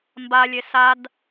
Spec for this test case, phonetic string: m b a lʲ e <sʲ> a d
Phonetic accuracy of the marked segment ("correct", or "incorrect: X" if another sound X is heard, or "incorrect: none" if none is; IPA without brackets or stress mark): incorrect: s